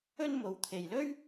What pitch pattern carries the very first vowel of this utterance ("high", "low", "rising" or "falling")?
high